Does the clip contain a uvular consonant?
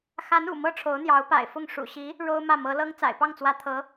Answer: no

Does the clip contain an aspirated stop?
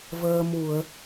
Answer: no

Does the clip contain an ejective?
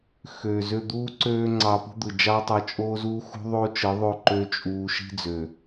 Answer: yes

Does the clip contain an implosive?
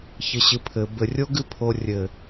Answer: no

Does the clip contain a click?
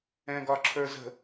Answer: yes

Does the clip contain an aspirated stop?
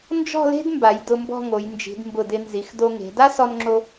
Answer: no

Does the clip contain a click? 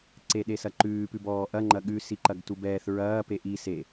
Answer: yes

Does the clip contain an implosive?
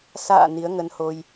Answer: no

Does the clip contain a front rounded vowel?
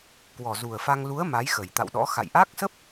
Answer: no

